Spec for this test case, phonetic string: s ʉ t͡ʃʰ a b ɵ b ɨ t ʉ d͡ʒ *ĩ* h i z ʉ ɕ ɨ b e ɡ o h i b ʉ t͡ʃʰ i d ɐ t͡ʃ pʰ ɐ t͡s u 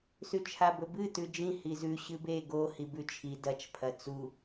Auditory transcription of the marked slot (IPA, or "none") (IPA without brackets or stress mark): ĩ